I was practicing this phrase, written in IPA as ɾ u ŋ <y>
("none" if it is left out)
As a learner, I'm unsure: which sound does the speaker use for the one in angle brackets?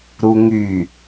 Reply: y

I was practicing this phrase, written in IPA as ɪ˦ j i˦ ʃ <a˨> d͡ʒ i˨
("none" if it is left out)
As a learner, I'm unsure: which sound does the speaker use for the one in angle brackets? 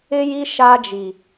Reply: a˦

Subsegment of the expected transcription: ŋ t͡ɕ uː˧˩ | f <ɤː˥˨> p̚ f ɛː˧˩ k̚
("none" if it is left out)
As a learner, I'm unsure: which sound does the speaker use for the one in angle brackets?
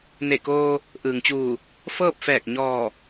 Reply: ɤː˥˨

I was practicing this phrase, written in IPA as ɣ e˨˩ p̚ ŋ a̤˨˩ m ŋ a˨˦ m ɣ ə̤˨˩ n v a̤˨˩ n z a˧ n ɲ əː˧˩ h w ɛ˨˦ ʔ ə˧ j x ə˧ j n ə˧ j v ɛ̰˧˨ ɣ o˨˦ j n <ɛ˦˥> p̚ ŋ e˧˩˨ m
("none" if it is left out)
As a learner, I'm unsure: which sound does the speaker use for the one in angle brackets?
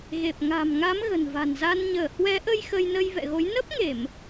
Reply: ə˦˥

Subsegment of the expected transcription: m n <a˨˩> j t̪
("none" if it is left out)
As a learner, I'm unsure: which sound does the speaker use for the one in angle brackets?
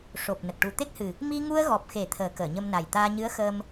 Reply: a˨˩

